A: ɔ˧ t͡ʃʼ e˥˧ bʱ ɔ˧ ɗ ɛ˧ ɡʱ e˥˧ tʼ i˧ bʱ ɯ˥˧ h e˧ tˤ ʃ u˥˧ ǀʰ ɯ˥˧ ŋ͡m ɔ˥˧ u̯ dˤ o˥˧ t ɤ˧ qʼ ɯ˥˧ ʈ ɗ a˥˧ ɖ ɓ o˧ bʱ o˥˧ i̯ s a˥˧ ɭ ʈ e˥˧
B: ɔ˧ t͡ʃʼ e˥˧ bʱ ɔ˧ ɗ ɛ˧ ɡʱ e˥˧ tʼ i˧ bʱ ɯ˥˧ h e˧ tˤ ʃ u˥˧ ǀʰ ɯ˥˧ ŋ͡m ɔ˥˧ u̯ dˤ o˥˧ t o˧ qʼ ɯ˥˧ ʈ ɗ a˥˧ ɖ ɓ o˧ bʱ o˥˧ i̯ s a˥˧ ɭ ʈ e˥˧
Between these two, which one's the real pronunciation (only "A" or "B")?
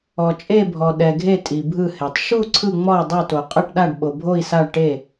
B